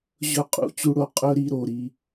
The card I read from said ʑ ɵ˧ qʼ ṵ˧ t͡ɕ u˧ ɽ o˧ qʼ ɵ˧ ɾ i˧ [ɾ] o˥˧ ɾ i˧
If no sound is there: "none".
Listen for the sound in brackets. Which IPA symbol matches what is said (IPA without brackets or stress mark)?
ɾ